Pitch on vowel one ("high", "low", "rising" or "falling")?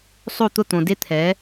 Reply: falling